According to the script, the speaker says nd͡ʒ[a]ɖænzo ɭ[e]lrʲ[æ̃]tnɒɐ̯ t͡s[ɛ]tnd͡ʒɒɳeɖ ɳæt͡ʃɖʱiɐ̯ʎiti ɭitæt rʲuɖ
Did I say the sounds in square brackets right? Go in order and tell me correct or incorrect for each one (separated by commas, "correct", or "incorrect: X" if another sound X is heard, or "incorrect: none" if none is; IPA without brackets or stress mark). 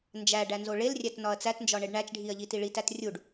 incorrect: æ, correct, incorrect: æ, incorrect: æ